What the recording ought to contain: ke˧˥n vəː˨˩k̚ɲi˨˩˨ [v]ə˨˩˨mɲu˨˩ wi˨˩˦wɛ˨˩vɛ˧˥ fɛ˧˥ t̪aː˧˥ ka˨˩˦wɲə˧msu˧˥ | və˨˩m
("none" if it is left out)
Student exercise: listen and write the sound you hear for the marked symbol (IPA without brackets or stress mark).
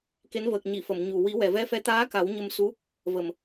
f